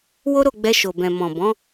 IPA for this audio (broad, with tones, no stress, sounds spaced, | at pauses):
w o˦ ɾ o˦˨ ɡ͡b ɛ˧ ʃ o˨ b ɛ̃˨ m ɔ̃˨ b ɔ̃˨˦